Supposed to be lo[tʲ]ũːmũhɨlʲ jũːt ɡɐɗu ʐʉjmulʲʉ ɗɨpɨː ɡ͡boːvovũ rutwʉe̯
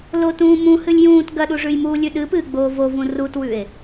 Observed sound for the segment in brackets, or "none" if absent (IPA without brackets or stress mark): t